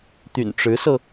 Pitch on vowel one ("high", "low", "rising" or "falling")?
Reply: low